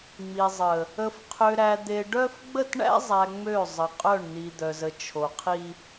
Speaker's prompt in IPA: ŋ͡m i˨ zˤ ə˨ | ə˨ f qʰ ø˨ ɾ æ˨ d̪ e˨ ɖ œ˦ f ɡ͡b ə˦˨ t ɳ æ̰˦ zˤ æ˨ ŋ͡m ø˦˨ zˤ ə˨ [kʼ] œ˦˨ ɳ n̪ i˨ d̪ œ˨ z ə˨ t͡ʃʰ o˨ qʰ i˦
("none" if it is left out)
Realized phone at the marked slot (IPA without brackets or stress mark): qʼ